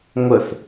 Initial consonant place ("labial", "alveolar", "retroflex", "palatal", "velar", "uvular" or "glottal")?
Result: velar